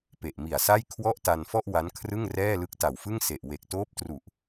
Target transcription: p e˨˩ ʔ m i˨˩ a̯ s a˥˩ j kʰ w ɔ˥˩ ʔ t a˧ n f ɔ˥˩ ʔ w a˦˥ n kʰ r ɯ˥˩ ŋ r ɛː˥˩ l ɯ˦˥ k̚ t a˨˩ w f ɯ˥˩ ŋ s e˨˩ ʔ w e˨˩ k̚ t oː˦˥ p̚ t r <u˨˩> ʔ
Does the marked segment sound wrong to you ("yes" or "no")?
no